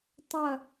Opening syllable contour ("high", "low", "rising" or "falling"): falling